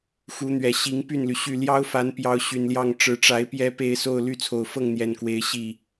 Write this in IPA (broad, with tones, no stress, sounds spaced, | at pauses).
x u˨˦ n̪ ɥ ɛ˨˩ ɕ i˨˦ ŋ p y˥˨ n l y˩ ɕ y˥˨ l j ɑ˦ ʊ̯ f a˨˦ n p j ɑ˨˦ ʊ̯ ɕ y˨˩ n l j ɑ˥˨ ŋ ʈ͡ʂ ɻ̩˨˦ ʈ͡ʂ a˨˦ ɪ̯ p j ɛ˦ p e˥˨ ɪ̯ s o˥˨ ʊ̯ l y˥˨ t͡sʰ o˨˩ ʊ̯ f ɤ˥˨ ŋ n̪ j ɛ˨˩ n k w e˨˦ ɪ̯ ɕ i˥˨